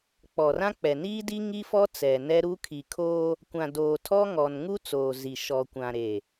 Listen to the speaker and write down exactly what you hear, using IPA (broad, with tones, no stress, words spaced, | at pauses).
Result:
k͡pɔ˨rã˦ k͡pɛ˨niː˦ di˦ ŋi˦fɔ˦ t͡sɛ˨nɛ˦ɾu˦ kʰi˨kʰoː˦ | kʷã˨ doː˨tʰɔ˦ŋɔ˨n ŋu˦t͡soː˨ zi˨ ʃɔ˨kʷã˨ɾe˨